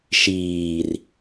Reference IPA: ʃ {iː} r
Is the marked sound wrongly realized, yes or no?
no